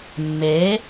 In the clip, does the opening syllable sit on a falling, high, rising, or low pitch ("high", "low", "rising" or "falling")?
rising